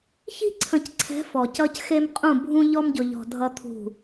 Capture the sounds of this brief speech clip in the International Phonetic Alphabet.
ç i̤˦ ǀʰ ə̃˨ c ǀʰ ɛ̤˨˦ f ɔ˨ c ʌ˦ c x e˦ m qʼ ũ˦˨ bʱ ũ˦ ʎ ɔ˦ m ɟ ʊ˨ ʎ ɔ̤˨ dʱ ʌ˦ t̪ʰ ṳ˦˨

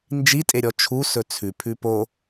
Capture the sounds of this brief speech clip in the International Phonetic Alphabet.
n d͡ʒ i tʼ e ɾʲ ɔ t͡ʃʰ u s ɵ t͡sʰ ʉ pʰ ʉ p o

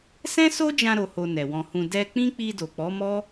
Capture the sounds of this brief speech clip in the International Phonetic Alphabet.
s ɛ̃˦ s o˦ d͡ʒ ã˧ ɾ o˧ h o˧ n ɛ˨ w ɔ̃˨ h ũ˨ d ɛ˧ k͡p ĩ˦ k͡p i˧ d o˨ k͡p ɔ˨˦ m ɔ˦

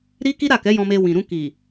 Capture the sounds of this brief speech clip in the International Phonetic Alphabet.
ɾ i˦ k i˦ ɾ a˦˨ k ɛ˨˦ j ɔ̃˧ m e˧ w ĩ˨ ɾ ũ˧ k i˨

